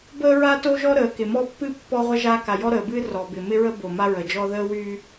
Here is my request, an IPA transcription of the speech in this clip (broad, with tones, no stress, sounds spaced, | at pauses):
b əː˦ ɹ a˦ t o˦ ʒ ɔ˦ ɾ əː˩ k ɪ˩ m ɔ˦ pː ɨ˦ pː ɔ˦ ʁʷ ə˦ ʒ a˦ k a˩ j ɔ˦ ɾ əː˩ b ɨː˦ r ɔ˩ b ɪ˩ m ɪ˦ ɹ ə˦ b o˩ m a˦ ɹ ə˩ d͡ʒ ɔ˦ ð əː˦ w yː˦